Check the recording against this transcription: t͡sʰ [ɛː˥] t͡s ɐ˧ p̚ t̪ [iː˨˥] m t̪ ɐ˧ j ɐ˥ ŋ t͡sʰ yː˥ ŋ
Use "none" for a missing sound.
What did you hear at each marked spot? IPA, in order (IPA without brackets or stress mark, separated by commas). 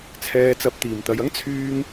ɛː˧, iː˨